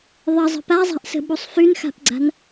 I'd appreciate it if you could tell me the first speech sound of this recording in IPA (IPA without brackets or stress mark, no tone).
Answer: ðˤ